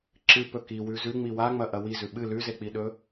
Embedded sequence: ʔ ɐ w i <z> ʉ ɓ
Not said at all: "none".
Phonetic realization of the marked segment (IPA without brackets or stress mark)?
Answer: z